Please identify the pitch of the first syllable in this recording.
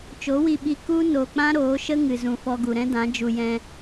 rising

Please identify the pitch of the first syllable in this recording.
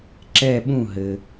falling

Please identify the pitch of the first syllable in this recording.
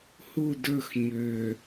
falling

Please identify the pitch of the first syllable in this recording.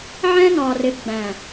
high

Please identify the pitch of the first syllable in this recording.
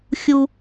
high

